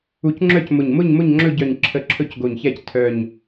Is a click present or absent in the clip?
present